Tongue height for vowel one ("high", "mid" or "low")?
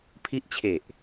high